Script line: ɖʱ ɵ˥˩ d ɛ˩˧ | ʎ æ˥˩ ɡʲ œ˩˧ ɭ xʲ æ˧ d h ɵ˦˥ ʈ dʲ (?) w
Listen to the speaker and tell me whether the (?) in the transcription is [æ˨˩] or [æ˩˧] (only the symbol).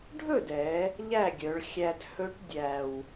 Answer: æ˨˩